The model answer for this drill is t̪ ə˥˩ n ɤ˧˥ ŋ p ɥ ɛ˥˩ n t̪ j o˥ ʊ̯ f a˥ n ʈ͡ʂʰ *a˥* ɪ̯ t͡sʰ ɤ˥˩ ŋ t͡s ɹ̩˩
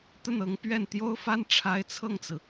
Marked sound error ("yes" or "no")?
no